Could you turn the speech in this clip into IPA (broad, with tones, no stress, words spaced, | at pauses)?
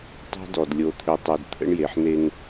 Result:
tˤo̤˦dɔ˨d lʲo˨t̪ʰø˨tˤø˨d t̪ʰə̰˦ɳje˨ħn̪e˦ŋ